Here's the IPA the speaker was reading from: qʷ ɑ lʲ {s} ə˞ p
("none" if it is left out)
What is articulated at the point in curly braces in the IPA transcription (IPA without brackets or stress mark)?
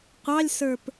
s